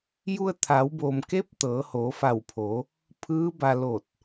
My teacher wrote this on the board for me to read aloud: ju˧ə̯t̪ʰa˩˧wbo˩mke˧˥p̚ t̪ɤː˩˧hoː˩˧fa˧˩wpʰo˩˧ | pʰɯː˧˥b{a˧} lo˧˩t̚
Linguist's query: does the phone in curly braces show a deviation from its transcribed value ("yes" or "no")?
no